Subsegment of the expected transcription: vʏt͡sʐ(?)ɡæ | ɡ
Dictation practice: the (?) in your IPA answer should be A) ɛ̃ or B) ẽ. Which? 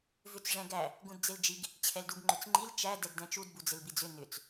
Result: A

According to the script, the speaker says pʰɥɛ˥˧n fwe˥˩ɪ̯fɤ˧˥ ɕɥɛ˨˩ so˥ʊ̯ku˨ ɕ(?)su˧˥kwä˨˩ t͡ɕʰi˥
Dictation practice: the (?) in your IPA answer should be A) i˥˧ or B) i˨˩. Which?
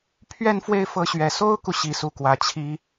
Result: B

